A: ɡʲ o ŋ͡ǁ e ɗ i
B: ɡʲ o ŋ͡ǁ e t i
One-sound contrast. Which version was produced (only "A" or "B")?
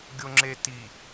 B